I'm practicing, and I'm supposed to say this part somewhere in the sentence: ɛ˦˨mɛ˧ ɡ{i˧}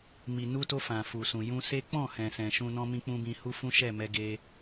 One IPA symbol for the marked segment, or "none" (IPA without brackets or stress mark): e˧